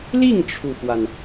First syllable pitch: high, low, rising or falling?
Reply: falling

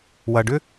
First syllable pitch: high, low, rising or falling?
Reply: low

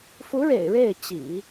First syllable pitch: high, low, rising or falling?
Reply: rising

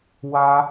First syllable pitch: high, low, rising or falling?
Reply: high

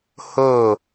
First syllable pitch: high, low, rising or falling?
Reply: falling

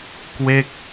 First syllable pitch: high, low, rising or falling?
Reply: falling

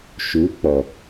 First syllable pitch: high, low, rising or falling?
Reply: rising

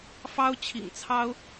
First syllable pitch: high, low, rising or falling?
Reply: high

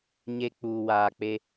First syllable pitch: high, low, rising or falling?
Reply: low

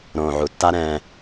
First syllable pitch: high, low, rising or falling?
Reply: low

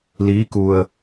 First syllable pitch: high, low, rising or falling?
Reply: rising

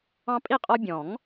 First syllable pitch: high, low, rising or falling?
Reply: high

